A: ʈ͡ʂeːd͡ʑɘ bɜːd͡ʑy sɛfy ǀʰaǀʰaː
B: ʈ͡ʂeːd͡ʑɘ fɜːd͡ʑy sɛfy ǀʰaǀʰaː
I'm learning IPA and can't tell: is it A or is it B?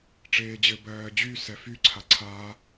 A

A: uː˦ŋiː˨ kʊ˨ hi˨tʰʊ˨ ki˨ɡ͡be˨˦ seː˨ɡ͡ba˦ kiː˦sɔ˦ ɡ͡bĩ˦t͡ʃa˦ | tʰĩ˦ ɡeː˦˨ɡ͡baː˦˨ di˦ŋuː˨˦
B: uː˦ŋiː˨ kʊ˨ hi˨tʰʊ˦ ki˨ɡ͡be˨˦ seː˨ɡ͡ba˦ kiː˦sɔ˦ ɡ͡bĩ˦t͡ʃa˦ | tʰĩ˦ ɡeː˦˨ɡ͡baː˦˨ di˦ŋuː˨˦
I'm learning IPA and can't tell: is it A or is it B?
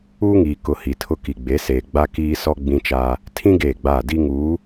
B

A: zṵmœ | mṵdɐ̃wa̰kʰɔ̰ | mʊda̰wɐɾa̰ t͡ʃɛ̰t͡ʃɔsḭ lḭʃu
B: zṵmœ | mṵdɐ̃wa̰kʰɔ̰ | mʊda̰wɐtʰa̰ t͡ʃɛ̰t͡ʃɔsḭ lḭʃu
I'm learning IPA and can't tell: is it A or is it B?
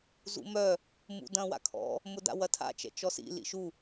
B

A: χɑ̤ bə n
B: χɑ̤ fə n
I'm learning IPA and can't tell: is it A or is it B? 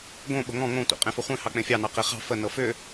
B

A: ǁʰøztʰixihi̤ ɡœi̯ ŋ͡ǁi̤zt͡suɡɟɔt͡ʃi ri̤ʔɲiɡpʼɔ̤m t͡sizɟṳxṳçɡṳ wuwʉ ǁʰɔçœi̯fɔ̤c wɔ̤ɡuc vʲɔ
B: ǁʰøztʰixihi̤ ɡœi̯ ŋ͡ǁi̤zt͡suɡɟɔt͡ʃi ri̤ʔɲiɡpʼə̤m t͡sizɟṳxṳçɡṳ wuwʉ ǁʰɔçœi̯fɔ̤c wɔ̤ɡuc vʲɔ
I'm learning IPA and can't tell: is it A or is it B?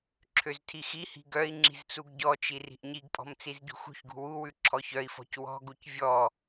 A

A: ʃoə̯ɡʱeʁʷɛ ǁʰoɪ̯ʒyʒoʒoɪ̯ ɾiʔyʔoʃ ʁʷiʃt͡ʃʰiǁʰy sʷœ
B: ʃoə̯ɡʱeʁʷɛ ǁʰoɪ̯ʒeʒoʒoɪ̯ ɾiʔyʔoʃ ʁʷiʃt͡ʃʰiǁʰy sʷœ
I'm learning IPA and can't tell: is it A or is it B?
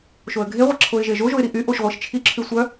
B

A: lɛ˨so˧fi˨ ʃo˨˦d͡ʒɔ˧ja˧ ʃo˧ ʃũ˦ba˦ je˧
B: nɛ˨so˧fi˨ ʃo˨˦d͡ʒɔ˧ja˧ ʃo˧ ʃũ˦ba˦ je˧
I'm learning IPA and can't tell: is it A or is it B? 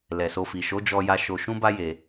A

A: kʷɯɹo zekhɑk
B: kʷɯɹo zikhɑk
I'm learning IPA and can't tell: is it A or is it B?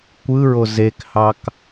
A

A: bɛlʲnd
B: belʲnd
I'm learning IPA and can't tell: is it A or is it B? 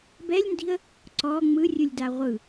A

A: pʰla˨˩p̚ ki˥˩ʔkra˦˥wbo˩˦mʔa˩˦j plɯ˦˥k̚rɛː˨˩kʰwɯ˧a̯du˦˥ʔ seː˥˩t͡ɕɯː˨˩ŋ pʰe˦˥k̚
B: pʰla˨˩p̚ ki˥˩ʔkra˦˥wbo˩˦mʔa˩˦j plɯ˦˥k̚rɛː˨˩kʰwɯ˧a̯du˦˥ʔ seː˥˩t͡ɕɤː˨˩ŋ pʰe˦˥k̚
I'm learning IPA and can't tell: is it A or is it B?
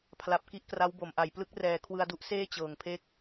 B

